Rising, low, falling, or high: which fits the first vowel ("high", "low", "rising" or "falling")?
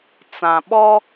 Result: low